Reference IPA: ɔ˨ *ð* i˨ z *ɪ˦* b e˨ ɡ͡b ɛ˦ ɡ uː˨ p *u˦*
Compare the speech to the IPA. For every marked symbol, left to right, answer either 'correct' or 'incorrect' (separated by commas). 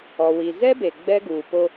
incorrect, incorrect, incorrect